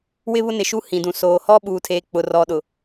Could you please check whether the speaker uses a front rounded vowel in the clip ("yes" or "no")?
no